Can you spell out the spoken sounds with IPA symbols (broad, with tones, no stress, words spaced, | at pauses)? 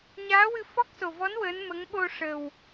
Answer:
ɲaː˧˥wɨ˧ fɔ˦˥k̚so˨˩vɔ˧˥n wəː˧˥n mə˧˥ŋ ɓo˧ʂə˨˩w